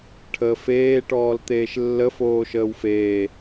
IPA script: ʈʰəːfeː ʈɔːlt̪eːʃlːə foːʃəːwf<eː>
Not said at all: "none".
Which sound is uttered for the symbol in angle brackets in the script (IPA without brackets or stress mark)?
eː